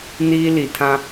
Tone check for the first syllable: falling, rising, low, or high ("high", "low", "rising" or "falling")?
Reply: high